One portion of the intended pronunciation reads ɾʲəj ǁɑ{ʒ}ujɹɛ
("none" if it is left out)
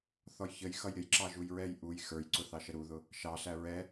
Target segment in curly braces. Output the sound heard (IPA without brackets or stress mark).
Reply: ʒ